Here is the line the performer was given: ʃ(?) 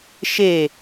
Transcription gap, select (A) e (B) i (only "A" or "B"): A